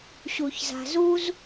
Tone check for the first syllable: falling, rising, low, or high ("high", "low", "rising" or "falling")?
low